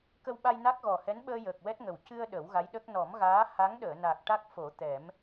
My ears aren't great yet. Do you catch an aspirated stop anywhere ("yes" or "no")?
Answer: no